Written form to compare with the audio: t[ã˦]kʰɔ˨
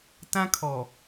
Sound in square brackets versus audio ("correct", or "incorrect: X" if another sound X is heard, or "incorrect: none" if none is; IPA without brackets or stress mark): correct